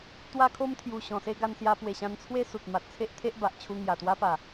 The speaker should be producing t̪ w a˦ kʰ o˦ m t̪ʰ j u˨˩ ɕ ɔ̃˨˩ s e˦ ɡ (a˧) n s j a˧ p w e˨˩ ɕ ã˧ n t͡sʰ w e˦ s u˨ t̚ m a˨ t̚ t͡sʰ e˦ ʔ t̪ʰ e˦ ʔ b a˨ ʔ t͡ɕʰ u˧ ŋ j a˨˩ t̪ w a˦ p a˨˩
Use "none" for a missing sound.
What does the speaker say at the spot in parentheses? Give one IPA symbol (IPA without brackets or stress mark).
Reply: a˧